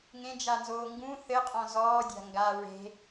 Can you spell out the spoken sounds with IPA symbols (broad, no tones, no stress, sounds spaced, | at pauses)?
ŋ ẽ d͡ʒ a n z oː ŋ ɡ ũ θ ɘ qʼ ɔ̃ z ɔː dʲ a̤ ŋ ɡ a ɹ e̤